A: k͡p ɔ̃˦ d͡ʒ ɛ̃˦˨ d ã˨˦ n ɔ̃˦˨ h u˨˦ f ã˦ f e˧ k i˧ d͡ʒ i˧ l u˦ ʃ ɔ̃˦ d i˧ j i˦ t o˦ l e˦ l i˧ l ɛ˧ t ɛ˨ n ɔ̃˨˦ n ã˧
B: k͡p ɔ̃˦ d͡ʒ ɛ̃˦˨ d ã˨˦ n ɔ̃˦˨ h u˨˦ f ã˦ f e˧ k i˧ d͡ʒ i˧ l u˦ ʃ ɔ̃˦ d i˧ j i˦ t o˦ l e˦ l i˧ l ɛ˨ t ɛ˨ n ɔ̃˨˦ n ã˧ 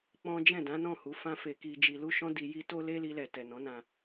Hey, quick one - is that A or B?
B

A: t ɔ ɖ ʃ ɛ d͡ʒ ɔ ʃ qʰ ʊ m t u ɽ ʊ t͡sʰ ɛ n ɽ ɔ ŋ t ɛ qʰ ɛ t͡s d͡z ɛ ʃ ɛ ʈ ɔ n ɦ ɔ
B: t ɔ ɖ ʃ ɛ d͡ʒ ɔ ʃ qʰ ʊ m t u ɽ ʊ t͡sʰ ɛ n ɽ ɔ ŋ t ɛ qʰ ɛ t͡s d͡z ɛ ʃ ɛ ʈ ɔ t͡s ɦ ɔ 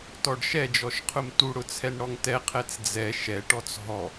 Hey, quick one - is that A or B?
B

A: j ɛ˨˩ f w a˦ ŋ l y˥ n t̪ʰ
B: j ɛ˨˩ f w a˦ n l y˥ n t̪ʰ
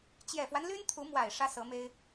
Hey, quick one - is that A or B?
B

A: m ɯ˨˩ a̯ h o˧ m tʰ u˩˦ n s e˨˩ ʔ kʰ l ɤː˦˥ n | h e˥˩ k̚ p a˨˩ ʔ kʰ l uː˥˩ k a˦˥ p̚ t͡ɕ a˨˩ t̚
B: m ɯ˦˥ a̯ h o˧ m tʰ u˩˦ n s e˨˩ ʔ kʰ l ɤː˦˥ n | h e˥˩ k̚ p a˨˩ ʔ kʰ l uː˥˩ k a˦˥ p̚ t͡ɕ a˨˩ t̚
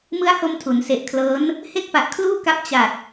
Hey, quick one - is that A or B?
B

